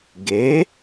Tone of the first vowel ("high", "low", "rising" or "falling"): rising